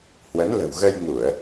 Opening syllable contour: rising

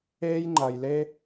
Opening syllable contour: high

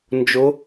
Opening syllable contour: rising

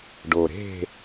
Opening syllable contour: low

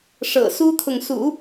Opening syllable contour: low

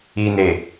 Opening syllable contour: low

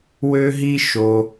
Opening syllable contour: high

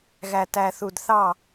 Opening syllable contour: low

